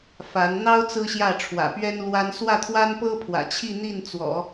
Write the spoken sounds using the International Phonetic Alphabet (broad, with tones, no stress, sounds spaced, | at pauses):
f a˧˥ n n̪ ɑ˥ ʊ̯ t͡s ɹ̩˥ ɕ j ä˥˩ ʈ͡ʂʰ w ä̰˨˩ p ɥ ɛ˥ n l w a˥ n s w ä˥˩ t̪ʰ w a˥ n p ɤ˥ pʰ w ä̰˨˩ t͡ɕʰ i˥˧ n̪ i˥˩ n t͡s w ɔ̰˨˩˦